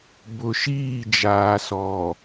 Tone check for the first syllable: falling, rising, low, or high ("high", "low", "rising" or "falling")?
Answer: low